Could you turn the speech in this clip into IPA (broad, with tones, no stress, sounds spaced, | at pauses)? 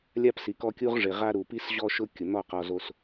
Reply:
lʲ a˦ p s i˨ k ɔ˦ kʲ u˦ ʁ ʐ ɪ˨ ʁ a˦ ɾ u˨ p i˦ s ʑ ɔ˦ ʃ ʊ˦ kʲ ʊ˨ n̪ ɔ˦˨ q ɔ˨ z o˨ s